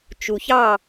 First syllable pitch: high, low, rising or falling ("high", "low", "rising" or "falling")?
low